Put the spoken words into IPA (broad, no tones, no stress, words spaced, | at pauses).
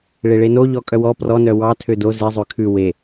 ɭeɭenoʎɔ kʼœwɔ prɔnœ wɑtʰø do zezˤø kʰʉ we